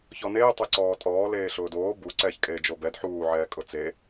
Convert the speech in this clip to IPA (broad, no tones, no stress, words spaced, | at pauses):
çɔneː tˤeǀɔːtʼɔː leːɬʊːdoː bu ǀɛːçkʼeːd͡ʒobɛd ħuː ʕɛːkʼʊt͡se